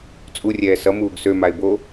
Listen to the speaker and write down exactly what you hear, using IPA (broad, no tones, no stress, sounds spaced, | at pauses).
t͡sʼ u rʲ ɛː s ʌ m uː ɡ s ø m a ɪ̯ b o